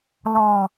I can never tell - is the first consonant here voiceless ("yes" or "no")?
no